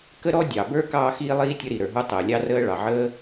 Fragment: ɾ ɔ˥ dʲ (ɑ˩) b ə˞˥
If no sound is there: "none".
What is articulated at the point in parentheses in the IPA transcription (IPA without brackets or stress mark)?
ɑ˩